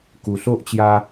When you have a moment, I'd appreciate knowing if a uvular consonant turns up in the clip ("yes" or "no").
no